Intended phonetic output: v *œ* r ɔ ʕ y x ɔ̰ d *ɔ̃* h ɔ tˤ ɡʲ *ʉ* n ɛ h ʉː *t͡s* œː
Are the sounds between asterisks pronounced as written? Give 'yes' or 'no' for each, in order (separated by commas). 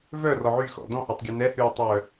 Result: yes, yes, yes, no